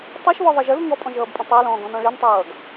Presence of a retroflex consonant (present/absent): present